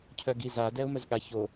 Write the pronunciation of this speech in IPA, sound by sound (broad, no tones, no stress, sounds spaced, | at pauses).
cʰ œ ɡ i z a d ɛ ʊ̯ m œ z ɠ a ç o